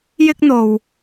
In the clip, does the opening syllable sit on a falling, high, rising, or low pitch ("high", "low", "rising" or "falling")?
high